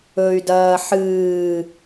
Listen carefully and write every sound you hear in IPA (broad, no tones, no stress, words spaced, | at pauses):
ɵy̯dɐː ħɨː